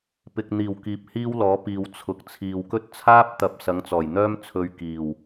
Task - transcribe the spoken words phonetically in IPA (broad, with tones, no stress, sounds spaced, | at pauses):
p ɪ˨ k̚ n̪ iː˨˩ w k iː˨˥ p̚ h iː˥ w l ɔː˨˥ p iː˨ w t͡sʰ ʊ˨ k̚ t͡sʰ iː˨ w k ɵ˥ t̚ t͡sʰ aː˥ p̚ t̪ ɐ˨˥ p̚ s ɐ˨˥ ŋ t͡s ɔː˨˩ j n̪ œː˥ m t͡sʰ ɵ˧ ɥ k iː˨˩ w